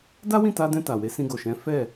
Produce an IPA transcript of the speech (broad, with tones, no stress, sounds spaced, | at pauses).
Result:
d a˦ w ĩ˦˨ t a˧ d ɛ̃˧ t a˨ w e˨˦ s ĩ˧ ɡ o˨ ʃ ɛ̃˨˦ f ɛ˦˨